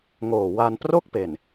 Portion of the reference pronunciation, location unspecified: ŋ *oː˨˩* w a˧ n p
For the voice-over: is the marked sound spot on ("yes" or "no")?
yes